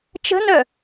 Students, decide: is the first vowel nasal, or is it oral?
oral